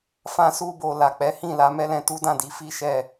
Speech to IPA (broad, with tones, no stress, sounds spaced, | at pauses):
f ã˧ s u˧ b o˨ l a˨ k͡p ɛ˨˦ h ĩ˦˨ l a˨˦ m ɛ˧ l ɛ̃˧ t u˦ d ã˦˨ d i˧ f i˦ ʃ ɛ˦˨